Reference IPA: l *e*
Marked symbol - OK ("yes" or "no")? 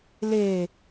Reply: yes